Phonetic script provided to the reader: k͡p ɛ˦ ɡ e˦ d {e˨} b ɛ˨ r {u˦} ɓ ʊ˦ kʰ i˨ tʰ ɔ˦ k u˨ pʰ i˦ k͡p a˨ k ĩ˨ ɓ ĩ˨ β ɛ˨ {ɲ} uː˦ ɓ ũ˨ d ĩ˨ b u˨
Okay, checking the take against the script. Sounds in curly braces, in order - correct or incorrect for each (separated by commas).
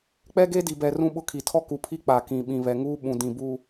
incorrect, incorrect, incorrect